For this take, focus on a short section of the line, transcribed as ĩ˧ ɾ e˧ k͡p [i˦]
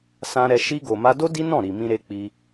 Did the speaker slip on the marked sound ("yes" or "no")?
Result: yes